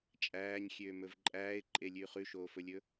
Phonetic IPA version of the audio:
t͡ʃʼ æː ɲ xʲ øː m ɵ v ǃʼ æː ɪ̯ ǃʼ e lʲ ʉː χ ʉ ʃ oː f ɵ lʲ ɵ

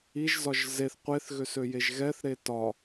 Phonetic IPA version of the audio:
i ʒ z ɒ ʒ z e θ qʷ e θ ɣ ø s ø j e ʒ ɣ ɛ θ ɾ e t ɒ

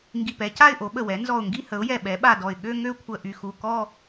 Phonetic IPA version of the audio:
ŋ ɡ i˧˩ p ɛ˩˥ c a˥˧ ɪ̯ ʔ o˩˥ ɓ ə˧˩ w ɛ˩˥ n z ɔ˧˩ ʊ̯ ŋ ɡ i˥˧ h ə˩˥ ʊ̯ j ɛ˧˩ ɓ ɛ˩˥ ɓ a˧˩ d ɔ˧˩ ɪ̯ ɠ ø˥˧ ŋ ø˥˧ kʷʰ ə˧˩ ʔ y˧˩ x u˧˩ k ɔ˥˧

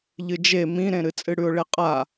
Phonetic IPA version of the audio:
ʎ ɨ d͡ʒ e m ĩ ɾ ẽ ɾ ɨ t͡sʼ ɨ ɽ ʉ ʊ̯ ɭ e qʼ a

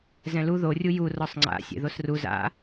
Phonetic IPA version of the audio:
z ɛ̃ l u ð o rʲ u j u r ɔ sˤ ŋ͡ǀ a̰ sʲ ḛ ð o s r u z a̰

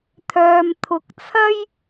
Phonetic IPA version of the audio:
t̪ʰ œː˨ m t̪ʰ ʊ˨˥ k̚ t͡sʰ ɐ˥ j

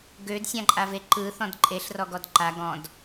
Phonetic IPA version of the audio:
ɡ ø d sʲ ã ǃʼ a v e ǃ ɯ θ ɔ̃ d ǃʼ e ɬ r ɔ ɡ ɔ d ǃ a ɡ ɔ̃ d

